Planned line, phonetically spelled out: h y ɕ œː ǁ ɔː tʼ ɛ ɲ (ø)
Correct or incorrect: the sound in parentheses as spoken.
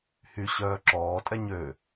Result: correct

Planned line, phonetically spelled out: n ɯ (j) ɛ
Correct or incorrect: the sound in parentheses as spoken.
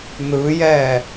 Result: correct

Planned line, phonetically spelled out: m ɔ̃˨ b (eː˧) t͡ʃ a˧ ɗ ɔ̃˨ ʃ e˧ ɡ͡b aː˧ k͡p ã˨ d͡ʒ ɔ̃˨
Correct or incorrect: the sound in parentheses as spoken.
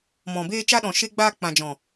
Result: correct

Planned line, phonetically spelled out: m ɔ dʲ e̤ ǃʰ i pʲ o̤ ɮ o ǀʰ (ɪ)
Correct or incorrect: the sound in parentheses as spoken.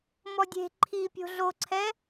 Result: incorrect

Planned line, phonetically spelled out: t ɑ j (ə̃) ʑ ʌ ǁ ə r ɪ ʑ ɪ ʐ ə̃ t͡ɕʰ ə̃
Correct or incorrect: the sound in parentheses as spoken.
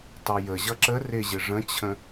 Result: incorrect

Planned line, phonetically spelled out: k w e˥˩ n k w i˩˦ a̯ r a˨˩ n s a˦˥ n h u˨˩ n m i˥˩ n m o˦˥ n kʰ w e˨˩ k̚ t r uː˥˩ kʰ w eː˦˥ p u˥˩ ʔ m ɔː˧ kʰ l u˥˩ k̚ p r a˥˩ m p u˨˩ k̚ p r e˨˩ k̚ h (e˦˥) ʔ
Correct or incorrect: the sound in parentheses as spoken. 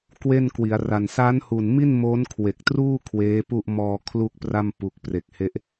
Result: correct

